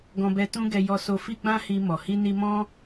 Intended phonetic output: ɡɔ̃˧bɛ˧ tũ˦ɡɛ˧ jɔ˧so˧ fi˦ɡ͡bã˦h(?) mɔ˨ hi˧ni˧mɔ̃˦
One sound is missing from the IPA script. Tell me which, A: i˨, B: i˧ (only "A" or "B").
B